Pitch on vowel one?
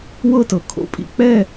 falling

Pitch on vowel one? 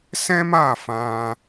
high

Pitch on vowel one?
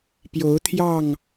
rising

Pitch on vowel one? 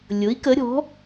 rising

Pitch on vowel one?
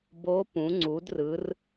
rising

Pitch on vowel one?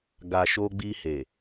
low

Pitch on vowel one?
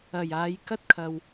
low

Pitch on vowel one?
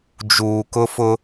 low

